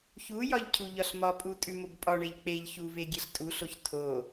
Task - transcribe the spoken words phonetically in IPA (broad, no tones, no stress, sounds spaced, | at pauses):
ç u j ɒ ʎ cʰ u ʎ ɒ ɬ m ɒ pʼ u tʼ ʉ m o b pʼ ɒ ɳ e ʎ k͡p e ʎ ç u v e ɡʲ e ɬ tʼ u ɬ o ç tʰ o